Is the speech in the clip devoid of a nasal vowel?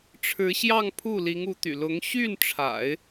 yes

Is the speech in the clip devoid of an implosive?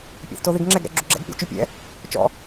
yes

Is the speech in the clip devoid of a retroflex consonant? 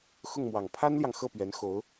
yes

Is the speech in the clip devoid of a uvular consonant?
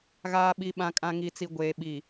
yes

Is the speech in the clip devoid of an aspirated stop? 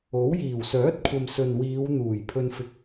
no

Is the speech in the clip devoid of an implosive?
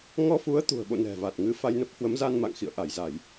no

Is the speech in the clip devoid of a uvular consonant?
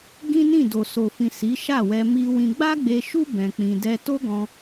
yes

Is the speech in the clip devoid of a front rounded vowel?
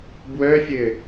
no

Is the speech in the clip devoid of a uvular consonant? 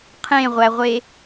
no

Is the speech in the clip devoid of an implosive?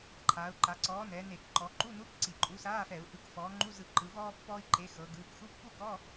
yes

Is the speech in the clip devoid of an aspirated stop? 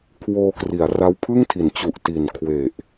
no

